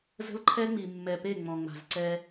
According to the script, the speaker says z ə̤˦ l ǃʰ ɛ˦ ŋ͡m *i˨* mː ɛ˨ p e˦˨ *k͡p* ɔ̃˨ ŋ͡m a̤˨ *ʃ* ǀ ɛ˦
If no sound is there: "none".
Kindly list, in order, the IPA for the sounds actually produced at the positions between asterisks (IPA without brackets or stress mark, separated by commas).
i˨, ŋ͡m, z